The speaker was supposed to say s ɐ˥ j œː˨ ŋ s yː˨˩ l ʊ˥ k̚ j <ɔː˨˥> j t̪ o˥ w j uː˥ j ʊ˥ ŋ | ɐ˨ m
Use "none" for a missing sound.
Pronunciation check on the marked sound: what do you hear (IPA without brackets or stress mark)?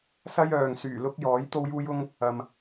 ɔː˨˥